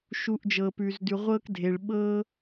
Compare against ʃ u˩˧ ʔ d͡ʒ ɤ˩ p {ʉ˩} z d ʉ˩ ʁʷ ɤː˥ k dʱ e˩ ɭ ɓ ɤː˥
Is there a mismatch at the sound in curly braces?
no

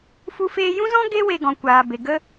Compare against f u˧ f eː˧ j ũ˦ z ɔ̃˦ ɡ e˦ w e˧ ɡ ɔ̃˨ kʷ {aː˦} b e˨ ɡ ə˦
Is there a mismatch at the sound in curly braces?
yes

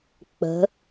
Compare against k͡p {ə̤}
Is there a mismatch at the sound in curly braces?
no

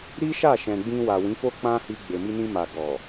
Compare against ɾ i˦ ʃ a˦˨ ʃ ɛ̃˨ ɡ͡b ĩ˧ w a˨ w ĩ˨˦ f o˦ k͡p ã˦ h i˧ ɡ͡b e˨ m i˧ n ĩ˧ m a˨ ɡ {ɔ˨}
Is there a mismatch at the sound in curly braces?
no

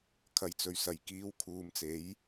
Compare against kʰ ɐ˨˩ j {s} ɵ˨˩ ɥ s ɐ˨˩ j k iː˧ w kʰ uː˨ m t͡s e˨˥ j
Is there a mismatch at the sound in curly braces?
yes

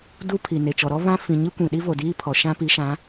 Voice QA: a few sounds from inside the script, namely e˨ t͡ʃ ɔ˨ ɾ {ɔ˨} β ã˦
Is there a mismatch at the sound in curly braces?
yes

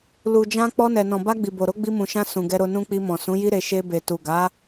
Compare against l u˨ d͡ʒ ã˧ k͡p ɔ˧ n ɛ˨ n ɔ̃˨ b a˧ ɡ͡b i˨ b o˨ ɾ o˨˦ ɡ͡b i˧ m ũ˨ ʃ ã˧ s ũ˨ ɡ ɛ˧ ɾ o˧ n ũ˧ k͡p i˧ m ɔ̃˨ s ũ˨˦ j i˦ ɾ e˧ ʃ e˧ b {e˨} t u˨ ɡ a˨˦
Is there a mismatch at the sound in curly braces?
no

